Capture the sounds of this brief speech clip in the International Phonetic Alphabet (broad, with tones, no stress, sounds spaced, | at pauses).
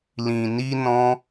l ĩ˨ n i˧ n ɔ̃˧